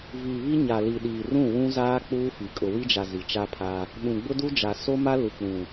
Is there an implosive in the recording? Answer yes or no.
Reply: yes